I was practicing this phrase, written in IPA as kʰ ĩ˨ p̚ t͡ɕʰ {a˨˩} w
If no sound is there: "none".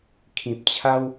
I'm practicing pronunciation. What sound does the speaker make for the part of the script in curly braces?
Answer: a˦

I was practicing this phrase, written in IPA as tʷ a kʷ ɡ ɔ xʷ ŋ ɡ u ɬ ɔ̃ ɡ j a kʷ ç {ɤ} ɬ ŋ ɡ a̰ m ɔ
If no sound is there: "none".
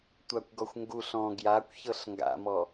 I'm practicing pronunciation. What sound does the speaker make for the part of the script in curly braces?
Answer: ɤ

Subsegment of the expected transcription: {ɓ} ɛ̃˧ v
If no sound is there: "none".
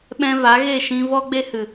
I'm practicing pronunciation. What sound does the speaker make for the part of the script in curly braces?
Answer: ɓ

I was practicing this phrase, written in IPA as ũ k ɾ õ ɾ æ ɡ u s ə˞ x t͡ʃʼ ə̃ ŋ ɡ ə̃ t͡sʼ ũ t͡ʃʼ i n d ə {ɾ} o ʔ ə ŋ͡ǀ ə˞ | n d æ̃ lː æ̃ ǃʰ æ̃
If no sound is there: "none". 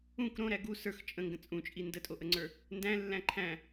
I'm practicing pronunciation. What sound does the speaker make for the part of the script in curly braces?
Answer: tʼ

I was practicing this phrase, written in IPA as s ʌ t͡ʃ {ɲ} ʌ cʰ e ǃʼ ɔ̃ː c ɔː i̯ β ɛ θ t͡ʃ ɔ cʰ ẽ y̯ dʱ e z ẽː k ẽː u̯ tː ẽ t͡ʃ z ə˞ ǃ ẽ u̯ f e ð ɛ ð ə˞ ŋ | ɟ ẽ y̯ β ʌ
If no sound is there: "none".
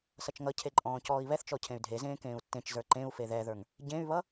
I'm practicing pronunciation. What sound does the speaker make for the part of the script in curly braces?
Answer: ŋ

